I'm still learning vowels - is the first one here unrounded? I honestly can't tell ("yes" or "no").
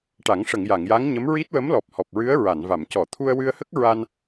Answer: yes